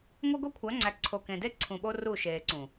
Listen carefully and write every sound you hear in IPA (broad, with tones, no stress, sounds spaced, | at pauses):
ŋʷ e˦ ɡ o˦ kʷʰ æ˨˦ ŋ͡ǀ æ˨ ǀʰ o˨ k ẽ˨ d e˦ ǀʰ ũ˨ ɓ o˦ r u˦˨ ʃ eː˨ ǀ ũ˨